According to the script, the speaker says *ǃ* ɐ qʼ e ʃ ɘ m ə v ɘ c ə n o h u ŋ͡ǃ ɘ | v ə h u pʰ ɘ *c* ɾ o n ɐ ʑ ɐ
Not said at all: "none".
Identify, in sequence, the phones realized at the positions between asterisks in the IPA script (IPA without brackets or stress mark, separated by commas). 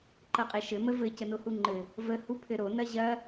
ǃ, none